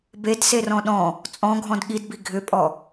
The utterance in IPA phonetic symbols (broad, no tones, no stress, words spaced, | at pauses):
bedserɔ̃ ɗɔ̃ | t͡sʼɔ̃ɡʱɔ̃d ɠidbi ɡʱʏpʼɔ